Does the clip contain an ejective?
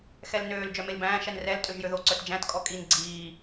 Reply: yes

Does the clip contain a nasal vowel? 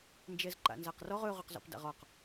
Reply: no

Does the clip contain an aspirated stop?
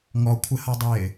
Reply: yes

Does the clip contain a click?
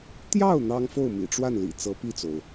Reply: no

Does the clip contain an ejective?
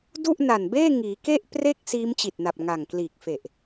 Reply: no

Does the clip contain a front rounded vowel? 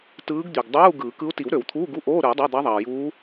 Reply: yes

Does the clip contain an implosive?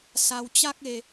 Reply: no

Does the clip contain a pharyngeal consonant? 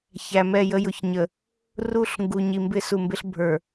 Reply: no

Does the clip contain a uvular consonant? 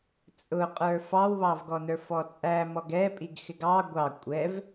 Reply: yes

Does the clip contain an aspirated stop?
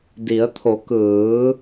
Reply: yes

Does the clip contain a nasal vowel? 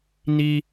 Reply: no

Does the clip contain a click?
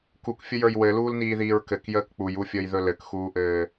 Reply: no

